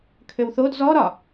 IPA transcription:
kʰøwθod zɔ ɾɒ

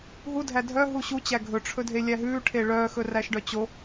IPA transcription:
ɦudʱæ dʱœ ɦuɕut͡ɕæ ɡʱɵʈ͡ʂʰɵ dʱelʲæɦʉːʈʰe ɭœː xɵræʃɖœt͡ɕo

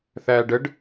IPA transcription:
θæːɖəɖ

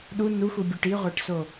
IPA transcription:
ɗu nuxubʲuʈ iʁʷæʈso

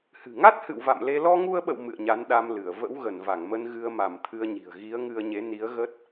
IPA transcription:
hɨ̤˨˩ŋa˦˥t̚hɨ̰˧˨w va̰˧˨mle˧ lɔ˧ŋu˧ə̯ɓə̰˧˨w mɨ̰˧˨ə̯ɲa˨˦nɗa˧m lɨ˧˩ə̯ və̰˧˥wɣə˧˩nva˧˩ŋmə˧n ɣɨ˧ə̯ma˧˩m t̪ʰɨ˧ə̯ɲi̤˨˩ə̯ ɣi˨˦ə̯ŋɨ˧ə̯ɲe˨˦ni˨˦ə̯ ɣə˦˥t̚

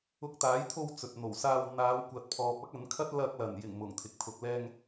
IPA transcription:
ʊ˧k̚t̪aː˨˥jt̪ʰo˧w t͡sɵ˨t̚n̪o˨˩w saː˧w n̪aː˨˧wkʷɐ˨t̚ pʰɔː˨p̚ ɐ˥k̚ɐ˨˥nkʰɐ˥t̚ lɐ˧k̚lɐ˨˩n jɪ˨˩ŋ mʊ˨˩ŋt̪ʰɪ˨k̚ t̪ʰʊ˨k̚lɛː˧ŋ

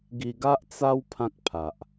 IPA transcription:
ɡi˧ɡa˦ʔ t͡sa˦w pʰã˦k̚pʰa˨ʔ

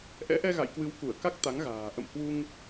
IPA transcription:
ʔɛ̰˧˥ʔɛ˧ɣa̰˧˨jkwɨ˨˦w ku˧˩ə̯ka˦˥k̚ t̪a˨˦ŋɣa̤ː˨˩ ʔə̰˧˨m hwu˧ŋ

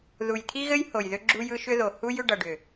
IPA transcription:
ðu˨jt̪ʰi˦ɣɘ˦j ho˨jðʏ˦ ɡ͡ǁu˦jɯ˦ʃʏ˦ðo˨ hu˦j ʏ˦ɖʌ˨ɖʏ˨

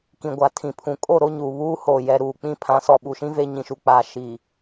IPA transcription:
kĩ˨ɡʷa˨tʰĩ˨pʰũ˨ kʼo˦˨ɾo˦ ɲuː˨βuː˦hoː˨ jɛ˨ɾuː˨k͡pĩ˦ pʰã˨˦sɔ˨ɓu˨ʃĩ˦ ve˦ɲĩ˨ʃu˨ k͡paː˨ʃi˨

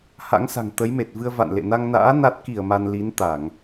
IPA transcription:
ha̰˧˥ŋsa̤˨˩ŋ t̪ə˨˦jme˨˩t̚vɨ˧ə̯ va̰˧˨nlḛ˧˨na˧ŋna̰ː˧˥ na˦˥t̚ ki˧˩ə̯ ma˧n li˨˦nt̪a˧˩˨ŋ

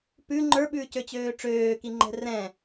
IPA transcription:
pʉ ŋ͡ǃə˞ɓʉːcø t͡ɕøːʈ͡ʂøːki ŋ͡ǃɛ̤rɛ̃

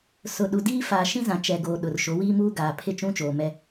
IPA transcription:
sʊ˨ɗu˨diː˦ faː˨ʃĩ˦zã˨ t͡ʃɛ˨ɡoː˨ ɗʊ˨rʃo˨˦wiː˦muː˦ ɡaː˨pʰɪ˦ t͡ʃũ˦t͡ʃoː˨mɛ˦

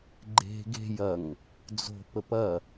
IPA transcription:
ɡ͡ǃe̤ ɡe̤j ɐŋ | d͡zo̤pəp ɐ

